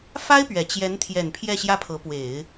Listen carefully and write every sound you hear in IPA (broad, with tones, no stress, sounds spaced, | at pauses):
f a˥ ɪ̯ p ɥ ɛ˨˩ t͡ɕ j ɛ˧˥ n t̪ʰ j ɛ˨˩ n pʰ j ɛ˥˧ ɕ j ä˥˩ pʰ ɤ˧˥ p w e˨˩˦ ɪ̯